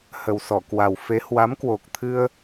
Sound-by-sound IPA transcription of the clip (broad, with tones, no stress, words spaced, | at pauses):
hə˨˩wsɔ˧˩kwa˨˩w fe˨˦ hwa˨˦mkwo˨˩k̚t̪ʰɨ˧ə̯